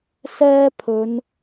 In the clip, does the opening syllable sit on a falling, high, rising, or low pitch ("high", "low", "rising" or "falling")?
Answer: high